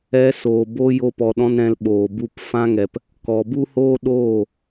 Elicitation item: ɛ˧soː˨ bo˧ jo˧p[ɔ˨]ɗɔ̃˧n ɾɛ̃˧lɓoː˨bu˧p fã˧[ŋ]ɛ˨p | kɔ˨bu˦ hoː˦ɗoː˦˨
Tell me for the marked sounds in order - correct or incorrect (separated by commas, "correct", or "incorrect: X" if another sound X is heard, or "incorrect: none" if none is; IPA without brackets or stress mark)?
correct, correct